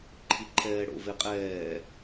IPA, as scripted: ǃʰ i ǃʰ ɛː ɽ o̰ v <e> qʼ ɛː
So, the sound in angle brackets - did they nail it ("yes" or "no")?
yes